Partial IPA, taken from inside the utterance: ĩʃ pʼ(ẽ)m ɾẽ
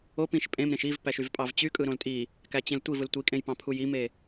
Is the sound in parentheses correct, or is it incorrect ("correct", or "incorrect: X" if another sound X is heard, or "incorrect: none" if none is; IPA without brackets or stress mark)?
correct